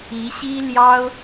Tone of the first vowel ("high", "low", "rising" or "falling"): rising